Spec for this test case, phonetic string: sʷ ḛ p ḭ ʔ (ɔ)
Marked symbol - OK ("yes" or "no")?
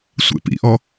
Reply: yes